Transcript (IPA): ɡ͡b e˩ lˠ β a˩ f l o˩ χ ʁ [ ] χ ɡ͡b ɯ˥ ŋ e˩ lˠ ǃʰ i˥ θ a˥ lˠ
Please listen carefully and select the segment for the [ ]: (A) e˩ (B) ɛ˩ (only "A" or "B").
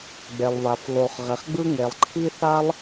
B